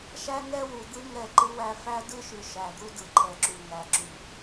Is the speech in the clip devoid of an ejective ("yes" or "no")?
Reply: yes